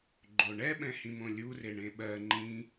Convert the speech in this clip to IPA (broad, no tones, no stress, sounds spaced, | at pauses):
ɡ͡ǃ o ɳ ɛ ɓ ɛ̃ h ĩ m õ lʲ u r e ɳ ẽ ɓ ɜ ŋ͡ǃ ĩ